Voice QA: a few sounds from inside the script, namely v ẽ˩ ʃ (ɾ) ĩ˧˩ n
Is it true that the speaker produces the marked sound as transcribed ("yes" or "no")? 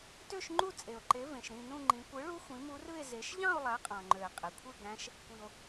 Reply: yes